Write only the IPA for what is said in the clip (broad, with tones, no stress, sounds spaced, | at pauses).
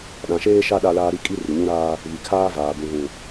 ɗ ã˨ ʃ eː˦ ʃ a˦ ɗ a˦ l aː˦ ɾ i˦˨ kʼ i˦ r i˨ ɲ ũ˦ ɾ aː˦ | β i˨ kʰ aː˦ v aː˨ b ũ˨ ɣ ũ˨